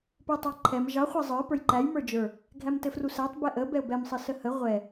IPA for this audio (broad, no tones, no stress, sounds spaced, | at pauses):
p ə˞ tˤ ɑ ǃʰ ɛ m ʒ ɑ χʷ ɛ zˤ ə˞ p ə˞ j ǃ æ j m ə˞ d͡ʒ ə˞ | ɡʱ æ m t ɘ f r u s æ tˤ b ɛ ʔ ə b ɛ ʊ̯ b ɛ m sˤ ɘ s ə h ə ʁʷ ɛ